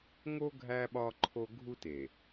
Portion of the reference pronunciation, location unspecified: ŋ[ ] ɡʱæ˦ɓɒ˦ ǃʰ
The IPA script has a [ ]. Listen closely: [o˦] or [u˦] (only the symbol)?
o˦